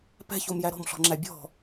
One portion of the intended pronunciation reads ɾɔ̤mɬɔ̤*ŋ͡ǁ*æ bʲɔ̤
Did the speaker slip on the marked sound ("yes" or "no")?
no